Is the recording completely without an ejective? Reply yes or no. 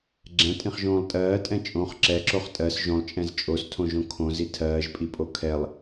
no